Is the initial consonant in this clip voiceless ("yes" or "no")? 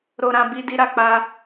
no